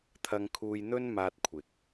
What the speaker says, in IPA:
t̪ʰ ɐ˧ ŋ kʰ uː˧ j n̪ ɵ˥ n m aː˧ t̚ kʷʰ ɪ˨ k̚

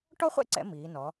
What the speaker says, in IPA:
ʈ ɔ˥ χʷ ɛ̰˥ ǀ ɛ̰˧ m iː˩˧ n ɔ˩˧

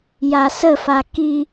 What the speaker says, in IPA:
j a s ə f a k i

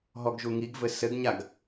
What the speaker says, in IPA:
ɦ ɔ ɡ ʒ u ŋ i ɡ v ɘ s ɘ ɡ ɲ a ɡ

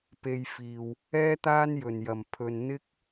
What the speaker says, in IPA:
p e˧ j f iː˨ w | ɛː˥ t̪ aː˥ n j ɵ˨˩ n j ɐ˨˩ m pʰ ɵ˨ n n̪ ɪ˥ k̚

